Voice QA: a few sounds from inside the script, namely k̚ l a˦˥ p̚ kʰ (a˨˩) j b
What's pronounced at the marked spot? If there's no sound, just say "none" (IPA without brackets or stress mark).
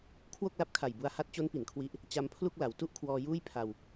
a˨˩